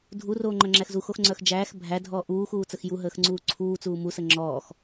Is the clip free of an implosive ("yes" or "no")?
yes